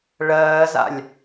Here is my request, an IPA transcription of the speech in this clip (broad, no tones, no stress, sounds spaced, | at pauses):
ɭ ɜː z a̰ lʲ